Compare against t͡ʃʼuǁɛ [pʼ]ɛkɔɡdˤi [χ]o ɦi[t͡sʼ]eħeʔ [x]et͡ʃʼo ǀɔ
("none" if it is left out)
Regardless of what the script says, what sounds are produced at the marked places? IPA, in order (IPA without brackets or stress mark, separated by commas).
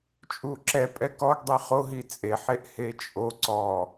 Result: pʼ, χ, t͡sʼ, h